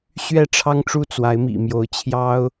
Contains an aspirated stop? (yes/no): yes